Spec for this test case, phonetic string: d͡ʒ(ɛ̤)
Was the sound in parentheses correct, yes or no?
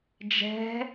yes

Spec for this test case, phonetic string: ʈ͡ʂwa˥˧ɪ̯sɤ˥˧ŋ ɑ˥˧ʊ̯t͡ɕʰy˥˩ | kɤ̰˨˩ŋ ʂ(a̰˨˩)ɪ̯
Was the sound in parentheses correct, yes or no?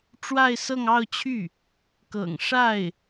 no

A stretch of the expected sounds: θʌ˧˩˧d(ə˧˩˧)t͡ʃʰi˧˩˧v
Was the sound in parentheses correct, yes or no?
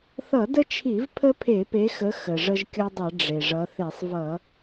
no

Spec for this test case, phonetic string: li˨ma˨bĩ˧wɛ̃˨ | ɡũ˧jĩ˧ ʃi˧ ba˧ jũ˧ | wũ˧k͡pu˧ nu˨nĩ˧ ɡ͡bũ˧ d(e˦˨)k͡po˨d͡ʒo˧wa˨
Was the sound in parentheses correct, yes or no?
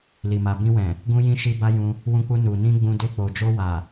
no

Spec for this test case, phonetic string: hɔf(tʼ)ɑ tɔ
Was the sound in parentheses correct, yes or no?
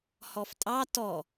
yes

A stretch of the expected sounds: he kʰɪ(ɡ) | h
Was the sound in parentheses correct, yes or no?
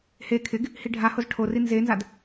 yes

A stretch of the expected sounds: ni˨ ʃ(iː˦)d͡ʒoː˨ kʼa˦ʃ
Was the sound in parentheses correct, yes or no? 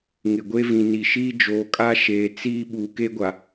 yes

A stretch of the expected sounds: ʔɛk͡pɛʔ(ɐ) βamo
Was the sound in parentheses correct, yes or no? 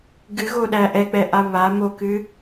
no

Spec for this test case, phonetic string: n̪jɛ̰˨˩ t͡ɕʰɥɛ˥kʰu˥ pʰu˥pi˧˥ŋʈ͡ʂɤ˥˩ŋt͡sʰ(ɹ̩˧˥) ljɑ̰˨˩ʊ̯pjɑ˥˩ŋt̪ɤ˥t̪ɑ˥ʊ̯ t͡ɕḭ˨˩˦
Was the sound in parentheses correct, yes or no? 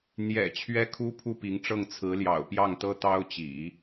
yes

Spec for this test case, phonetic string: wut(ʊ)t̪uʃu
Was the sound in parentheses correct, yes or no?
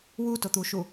yes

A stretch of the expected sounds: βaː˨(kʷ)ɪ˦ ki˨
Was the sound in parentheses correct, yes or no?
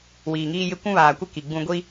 yes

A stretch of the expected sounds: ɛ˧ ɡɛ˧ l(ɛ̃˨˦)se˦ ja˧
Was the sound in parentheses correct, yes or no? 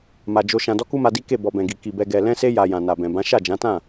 no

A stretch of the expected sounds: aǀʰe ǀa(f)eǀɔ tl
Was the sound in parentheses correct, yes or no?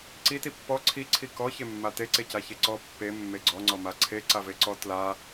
no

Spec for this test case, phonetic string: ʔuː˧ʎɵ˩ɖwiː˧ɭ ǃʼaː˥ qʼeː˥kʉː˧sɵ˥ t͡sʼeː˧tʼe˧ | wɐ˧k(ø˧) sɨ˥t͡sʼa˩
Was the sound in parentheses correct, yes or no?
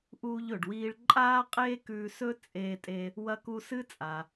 no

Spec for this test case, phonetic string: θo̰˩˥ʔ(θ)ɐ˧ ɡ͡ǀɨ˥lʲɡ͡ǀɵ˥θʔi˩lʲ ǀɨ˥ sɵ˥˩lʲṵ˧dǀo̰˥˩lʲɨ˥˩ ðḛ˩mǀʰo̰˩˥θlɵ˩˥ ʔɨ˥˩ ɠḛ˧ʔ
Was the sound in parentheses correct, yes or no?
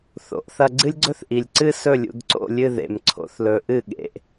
yes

